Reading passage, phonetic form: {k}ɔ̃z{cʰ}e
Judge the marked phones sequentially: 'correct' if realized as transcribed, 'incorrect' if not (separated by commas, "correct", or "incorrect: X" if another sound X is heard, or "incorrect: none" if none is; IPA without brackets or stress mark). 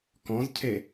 correct, correct